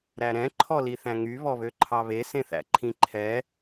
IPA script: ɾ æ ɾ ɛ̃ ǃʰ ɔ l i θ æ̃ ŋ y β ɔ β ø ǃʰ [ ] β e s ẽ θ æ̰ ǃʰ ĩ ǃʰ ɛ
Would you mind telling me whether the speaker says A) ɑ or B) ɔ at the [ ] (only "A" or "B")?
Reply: A